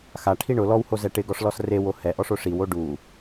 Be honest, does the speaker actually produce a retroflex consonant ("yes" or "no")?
yes